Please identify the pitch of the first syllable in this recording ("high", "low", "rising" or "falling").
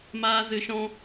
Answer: high